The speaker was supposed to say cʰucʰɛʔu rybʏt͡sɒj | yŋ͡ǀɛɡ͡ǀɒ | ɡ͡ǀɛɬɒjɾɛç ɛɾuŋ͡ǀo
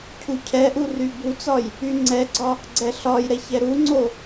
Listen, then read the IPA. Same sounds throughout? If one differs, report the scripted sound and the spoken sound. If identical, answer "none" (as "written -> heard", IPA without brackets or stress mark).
ʏ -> u